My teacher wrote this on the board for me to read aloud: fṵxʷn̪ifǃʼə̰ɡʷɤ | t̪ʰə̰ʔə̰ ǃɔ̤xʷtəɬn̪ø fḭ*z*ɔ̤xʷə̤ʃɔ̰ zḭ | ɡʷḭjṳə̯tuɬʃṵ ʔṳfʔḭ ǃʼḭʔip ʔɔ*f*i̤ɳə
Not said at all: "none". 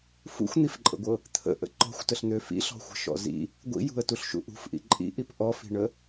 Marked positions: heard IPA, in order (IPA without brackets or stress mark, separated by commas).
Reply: ɬ, f